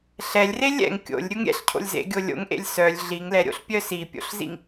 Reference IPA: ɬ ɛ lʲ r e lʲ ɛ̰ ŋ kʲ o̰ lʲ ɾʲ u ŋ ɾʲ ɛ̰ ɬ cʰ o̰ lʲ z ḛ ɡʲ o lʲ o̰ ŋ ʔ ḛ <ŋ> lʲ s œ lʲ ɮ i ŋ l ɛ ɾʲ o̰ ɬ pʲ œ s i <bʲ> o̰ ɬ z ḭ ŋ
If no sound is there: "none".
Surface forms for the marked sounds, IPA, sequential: none, pʲ

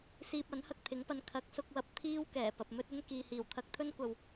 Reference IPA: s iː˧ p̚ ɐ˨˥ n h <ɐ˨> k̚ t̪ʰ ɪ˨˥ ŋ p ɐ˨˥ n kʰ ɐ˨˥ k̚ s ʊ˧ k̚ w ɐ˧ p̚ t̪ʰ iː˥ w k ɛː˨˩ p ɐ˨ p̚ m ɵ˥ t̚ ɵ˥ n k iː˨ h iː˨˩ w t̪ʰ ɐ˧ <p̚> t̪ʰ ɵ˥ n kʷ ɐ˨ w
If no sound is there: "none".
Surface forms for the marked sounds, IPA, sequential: ɐ˧, k̚

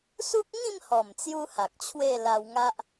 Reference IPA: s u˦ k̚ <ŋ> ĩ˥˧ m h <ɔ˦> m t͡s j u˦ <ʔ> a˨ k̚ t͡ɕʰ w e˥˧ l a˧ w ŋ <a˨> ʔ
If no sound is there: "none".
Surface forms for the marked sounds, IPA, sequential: ŋ, ɔ˨˩, h, a˦

